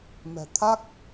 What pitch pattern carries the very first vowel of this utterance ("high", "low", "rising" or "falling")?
low